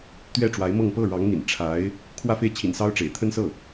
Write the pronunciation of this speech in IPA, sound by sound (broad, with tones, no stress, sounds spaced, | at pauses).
t̪ ɥ ɛ˥˩ ʈ͡ʂ w a˧˥ ɪ̯ m ɤ˥˧ ŋ p ɤ˥˩ ɻ ɑ˧˥ ŋ n̪ ḭ˨˩ n ʈ͡ʂʰ a˧˥ ɪ̯ | kʰ w ä˥˧ f e˥˩ ɪ̯ t͡ɕʰ ḭ˨˩ n s ɑ˥ ʊ̯ ʈ͡ʂ ḛ˨˩ ɪ̯ t̪ʰ ə˥ n s ɤ˥˩